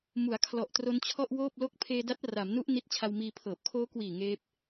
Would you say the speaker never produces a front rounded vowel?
yes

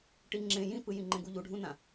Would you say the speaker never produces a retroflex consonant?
no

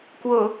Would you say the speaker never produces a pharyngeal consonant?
yes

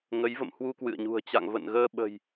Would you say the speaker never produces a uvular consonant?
yes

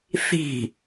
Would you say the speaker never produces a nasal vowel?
yes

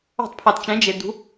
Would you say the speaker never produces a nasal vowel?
no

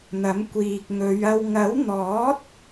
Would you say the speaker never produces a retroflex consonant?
yes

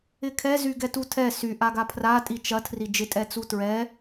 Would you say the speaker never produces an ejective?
no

